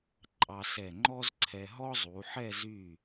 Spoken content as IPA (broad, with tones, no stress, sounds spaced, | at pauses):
ǃʼ ɑ˧ s ɛ˧˩ ŋ͡ǃ ɔ˥ z ǀʰ ɛ˧ ɦ ɔ˥ zˤ u˩˧ ħ ɛ˥˧ z y˧˩